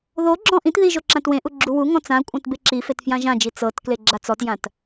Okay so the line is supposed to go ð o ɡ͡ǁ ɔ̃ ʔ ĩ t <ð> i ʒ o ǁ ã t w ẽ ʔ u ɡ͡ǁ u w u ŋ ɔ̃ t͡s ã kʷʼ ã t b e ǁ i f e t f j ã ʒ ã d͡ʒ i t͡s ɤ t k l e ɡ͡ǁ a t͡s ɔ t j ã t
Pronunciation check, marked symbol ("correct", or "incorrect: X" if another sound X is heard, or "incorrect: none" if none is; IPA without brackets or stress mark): correct